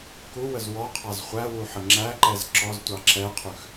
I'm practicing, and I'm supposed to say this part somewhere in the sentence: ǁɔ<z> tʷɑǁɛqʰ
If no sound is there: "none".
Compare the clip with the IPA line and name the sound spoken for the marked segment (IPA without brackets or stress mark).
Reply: z